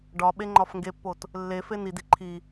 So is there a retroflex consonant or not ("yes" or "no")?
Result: yes